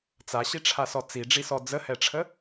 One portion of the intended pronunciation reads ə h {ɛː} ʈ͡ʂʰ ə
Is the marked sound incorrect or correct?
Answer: incorrect